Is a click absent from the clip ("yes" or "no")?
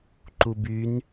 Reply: no